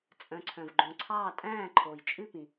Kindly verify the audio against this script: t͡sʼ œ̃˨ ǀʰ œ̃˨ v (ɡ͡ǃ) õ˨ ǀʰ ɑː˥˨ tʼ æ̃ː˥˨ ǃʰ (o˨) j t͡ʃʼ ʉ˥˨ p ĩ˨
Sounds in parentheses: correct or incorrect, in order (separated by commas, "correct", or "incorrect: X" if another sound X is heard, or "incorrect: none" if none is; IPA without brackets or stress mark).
correct, correct